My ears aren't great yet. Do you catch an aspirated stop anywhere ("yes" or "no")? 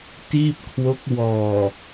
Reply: yes